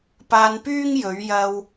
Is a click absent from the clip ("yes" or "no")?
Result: yes